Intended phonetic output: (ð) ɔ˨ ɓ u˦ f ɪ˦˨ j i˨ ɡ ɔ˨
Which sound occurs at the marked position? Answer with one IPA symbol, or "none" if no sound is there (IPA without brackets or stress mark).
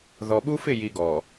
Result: ð